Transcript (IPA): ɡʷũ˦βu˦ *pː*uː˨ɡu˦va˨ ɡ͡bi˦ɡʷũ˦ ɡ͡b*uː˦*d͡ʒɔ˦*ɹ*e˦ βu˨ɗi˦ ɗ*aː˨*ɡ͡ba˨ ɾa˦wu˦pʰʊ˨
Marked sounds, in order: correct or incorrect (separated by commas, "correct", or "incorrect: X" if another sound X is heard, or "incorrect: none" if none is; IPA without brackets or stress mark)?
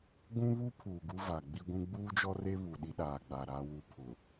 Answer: incorrect: pʰ, correct, incorrect: r, correct